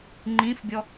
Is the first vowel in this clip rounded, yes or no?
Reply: no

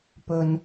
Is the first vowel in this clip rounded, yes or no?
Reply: yes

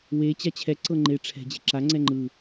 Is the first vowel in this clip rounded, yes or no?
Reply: no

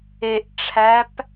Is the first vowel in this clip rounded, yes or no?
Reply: no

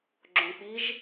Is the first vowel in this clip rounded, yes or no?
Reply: yes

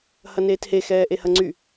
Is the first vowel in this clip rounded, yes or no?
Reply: no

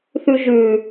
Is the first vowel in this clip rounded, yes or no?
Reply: yes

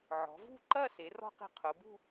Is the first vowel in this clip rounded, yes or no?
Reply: yes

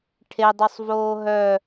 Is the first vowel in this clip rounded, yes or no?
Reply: no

